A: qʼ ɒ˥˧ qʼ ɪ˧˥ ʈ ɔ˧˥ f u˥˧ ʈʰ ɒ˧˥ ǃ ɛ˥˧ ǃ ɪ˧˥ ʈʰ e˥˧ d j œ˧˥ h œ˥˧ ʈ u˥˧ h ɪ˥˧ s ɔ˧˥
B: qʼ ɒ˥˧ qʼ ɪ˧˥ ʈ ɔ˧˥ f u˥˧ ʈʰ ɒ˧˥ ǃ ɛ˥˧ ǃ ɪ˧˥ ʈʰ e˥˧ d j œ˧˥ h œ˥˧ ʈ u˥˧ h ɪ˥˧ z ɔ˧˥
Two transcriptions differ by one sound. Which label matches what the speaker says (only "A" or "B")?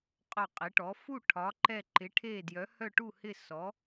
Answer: A